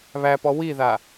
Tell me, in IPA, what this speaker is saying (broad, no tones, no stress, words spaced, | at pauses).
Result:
βæpɔ wiða